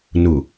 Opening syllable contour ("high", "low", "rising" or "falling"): low